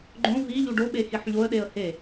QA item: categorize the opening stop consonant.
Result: click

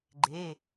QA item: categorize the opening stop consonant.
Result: click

